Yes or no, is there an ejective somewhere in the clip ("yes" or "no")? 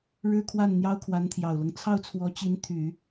no